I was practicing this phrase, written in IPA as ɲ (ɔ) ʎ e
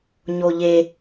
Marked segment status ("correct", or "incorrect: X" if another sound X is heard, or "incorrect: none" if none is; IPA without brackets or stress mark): incorrect: o